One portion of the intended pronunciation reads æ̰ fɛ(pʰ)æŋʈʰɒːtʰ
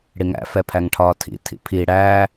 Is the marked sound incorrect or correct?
correct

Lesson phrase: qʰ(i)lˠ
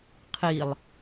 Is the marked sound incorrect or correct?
correct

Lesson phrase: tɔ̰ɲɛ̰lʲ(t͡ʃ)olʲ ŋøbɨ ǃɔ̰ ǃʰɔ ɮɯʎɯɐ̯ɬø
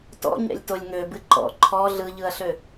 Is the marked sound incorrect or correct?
incorrect: t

